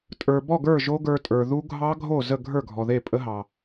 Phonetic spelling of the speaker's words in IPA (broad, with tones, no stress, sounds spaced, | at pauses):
tʼ ə˞˩ b ɔ˥˩ ɡ ə˞˥˩ ʒ o˦˥ ɡ ə˞˧ tʼ ə˞˩ ð u˦˥ ɡʱ ɑ˦˥ ɡʱ o˥˩ z ə˥˩ ɡʱ ə˞˥˩ ɡʱ ɔ˩ ð e˥˩ pʼ ə˦˥ ɦ ɑ˩